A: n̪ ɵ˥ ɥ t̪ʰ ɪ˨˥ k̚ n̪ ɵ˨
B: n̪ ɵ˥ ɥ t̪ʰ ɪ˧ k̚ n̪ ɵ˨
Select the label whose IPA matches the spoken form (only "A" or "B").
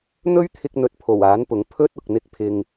B